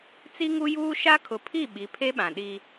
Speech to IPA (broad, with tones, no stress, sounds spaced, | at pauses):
t͡s i˦ ŋ u˦ j uː˦ ʃ a˦ kʰ ʊ˨ pʰ i˦˨ ɓ i˨˦ pʰ e˦ ɓ ã˨ ɗ i˦